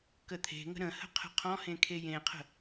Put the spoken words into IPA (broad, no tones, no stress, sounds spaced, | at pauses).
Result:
k ə t̪ʰ e̤ ŋ ə̤ ɾ ə̃ h ə̤ qʰ ə̤ qʰ ɔ̃ h ẽ kʰ e j ẽ qʰ ə̤